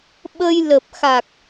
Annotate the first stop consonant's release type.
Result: implosive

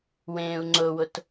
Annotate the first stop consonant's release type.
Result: click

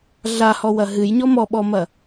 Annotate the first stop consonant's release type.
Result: implosive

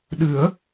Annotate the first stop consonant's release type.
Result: implosive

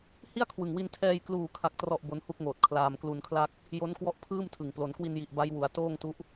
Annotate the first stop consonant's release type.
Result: aspirated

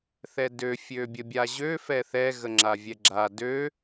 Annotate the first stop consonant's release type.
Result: plain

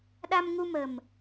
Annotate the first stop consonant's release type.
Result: implosive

